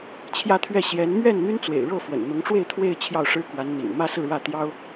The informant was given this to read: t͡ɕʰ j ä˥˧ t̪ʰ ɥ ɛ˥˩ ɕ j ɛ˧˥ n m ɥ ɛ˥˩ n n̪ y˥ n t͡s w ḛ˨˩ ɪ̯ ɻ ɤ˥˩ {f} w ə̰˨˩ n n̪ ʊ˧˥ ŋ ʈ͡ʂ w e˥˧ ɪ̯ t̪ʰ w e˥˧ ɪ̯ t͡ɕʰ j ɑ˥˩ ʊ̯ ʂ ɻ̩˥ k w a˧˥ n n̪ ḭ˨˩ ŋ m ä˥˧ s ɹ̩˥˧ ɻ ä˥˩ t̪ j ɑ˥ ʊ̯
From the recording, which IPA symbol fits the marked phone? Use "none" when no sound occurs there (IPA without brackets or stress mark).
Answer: f